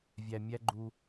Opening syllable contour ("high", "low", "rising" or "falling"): low